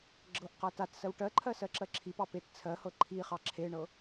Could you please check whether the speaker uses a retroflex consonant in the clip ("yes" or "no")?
yes